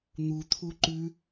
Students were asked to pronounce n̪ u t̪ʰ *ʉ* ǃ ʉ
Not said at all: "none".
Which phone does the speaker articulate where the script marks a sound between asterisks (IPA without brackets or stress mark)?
u